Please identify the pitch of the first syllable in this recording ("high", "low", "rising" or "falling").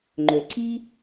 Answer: low